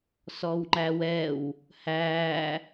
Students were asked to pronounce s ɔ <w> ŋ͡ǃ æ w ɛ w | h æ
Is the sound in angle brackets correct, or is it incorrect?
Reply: correct